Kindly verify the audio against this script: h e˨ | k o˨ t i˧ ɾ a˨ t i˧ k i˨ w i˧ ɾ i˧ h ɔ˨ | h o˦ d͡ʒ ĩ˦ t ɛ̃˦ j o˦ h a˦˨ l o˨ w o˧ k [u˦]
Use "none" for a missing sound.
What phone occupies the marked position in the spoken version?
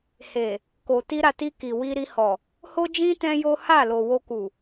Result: u˨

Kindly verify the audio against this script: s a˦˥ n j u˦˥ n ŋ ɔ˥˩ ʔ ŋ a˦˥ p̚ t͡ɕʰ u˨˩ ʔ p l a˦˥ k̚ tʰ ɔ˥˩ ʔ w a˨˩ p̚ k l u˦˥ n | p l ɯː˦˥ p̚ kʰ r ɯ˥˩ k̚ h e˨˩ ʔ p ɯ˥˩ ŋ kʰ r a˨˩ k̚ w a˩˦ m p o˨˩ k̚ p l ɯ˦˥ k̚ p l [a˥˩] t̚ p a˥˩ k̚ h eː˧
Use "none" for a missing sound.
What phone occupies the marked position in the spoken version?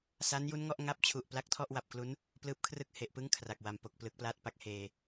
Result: aː˥˩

